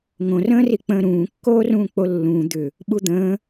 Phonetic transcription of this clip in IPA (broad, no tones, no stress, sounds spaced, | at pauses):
ŋ õ r ə̃ː r i k͡p ə̃ː ɾ ũː kː oː r ũː k͡p o lː ũː d̪ ʏ | ɓ u d̪ ə̃ː